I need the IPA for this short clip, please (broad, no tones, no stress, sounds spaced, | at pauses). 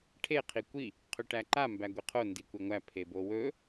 ʈʰ e qʰ i kʷ i | qʰ ɵ ʈ æ ǃ a m b æ ɡʷ i qʰ o n d i kʷ e ŋʷ æ pʰ e b o w ɵ